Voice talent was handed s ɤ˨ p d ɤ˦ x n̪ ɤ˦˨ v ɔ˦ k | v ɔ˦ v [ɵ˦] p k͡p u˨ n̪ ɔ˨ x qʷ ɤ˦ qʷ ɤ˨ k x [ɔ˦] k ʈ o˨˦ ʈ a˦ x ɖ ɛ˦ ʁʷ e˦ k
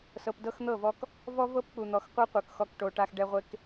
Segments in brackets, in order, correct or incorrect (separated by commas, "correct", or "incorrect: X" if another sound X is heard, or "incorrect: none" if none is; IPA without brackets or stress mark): incorrect: ɤ˦, correct